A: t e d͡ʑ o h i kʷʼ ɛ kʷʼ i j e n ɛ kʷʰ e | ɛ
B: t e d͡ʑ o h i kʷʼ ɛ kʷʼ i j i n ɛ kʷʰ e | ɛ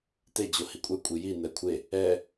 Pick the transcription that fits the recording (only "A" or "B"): B